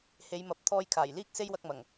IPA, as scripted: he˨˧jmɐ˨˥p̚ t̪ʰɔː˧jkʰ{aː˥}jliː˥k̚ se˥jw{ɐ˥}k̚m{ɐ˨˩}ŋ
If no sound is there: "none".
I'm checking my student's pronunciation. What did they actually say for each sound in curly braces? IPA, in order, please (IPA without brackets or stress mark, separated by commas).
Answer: aː˨˩, ɐ˧, ɐ˨˩